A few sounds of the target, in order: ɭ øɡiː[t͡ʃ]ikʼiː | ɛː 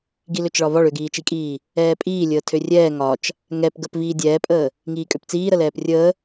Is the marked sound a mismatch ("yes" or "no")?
no